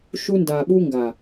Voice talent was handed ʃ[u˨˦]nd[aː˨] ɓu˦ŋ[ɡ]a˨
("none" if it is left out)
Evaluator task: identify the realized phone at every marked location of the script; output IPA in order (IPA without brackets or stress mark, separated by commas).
u˦, a˨, ɡ